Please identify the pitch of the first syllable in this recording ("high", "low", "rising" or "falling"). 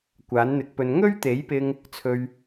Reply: rising